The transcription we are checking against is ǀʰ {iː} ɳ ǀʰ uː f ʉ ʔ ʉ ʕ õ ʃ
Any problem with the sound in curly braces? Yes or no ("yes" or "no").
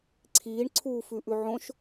no